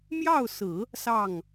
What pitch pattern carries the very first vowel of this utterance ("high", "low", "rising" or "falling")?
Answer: falling